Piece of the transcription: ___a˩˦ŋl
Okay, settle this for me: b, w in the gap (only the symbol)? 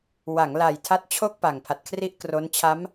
w